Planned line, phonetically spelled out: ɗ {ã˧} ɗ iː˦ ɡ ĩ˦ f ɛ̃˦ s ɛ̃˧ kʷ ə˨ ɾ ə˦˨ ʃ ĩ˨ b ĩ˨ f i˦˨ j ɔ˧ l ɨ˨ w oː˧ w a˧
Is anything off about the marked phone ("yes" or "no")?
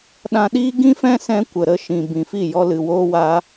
no